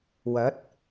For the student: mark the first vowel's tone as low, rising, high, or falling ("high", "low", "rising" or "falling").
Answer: rising